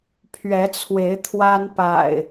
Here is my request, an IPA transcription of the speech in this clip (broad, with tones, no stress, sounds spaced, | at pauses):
pʰ ɥ ɛ˨˦ t͡sʰ w e˨˦ ɪ̯ t̪ʰ w a˦ n p a̰˨˩ ɪ̯